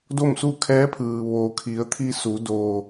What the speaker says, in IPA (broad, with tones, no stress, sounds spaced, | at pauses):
d o˥˨ m s u˥˨ kʰ ɛː˧˥ pʰ ɯː˩ ʋ oː˩ kʰ i˩˧ ə̯ t̪ʰ i˧ s u˩˧ d oː˩